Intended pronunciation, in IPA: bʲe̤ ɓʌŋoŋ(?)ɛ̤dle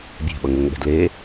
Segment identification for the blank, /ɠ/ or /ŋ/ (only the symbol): ɠ